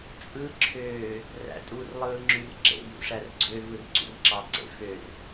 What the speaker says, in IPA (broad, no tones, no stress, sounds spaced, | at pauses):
t͡sʼ ɯ ǁʰ øː | r æ̰ tʼ u r lˠ ɯː ŋ͡ǁ y r ǁ ḛ j ṵ ʂ æ r ɡ͡ǀ ø v ɯ r ǀ ṵ r ǁ ɑ ǀ ḛ f ø r